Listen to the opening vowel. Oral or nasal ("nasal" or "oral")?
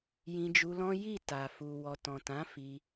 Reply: nasal